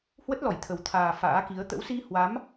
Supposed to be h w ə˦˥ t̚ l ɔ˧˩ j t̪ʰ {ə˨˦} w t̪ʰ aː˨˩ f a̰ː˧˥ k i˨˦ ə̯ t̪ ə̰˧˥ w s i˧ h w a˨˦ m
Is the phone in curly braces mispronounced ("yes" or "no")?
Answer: yes